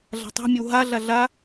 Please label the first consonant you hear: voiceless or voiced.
voiced